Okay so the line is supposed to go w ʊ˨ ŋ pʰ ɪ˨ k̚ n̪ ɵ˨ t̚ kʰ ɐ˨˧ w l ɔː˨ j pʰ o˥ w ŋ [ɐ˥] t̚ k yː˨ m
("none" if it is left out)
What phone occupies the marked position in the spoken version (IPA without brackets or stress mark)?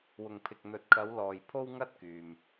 ɐ˥